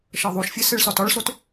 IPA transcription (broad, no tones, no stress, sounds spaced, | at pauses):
ʃ ɤ ðˤ u ʃ fʲ e s e ɭ s ɒ t ɒ ɭ s o t